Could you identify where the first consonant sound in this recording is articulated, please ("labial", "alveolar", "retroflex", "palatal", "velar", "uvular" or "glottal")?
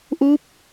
glottal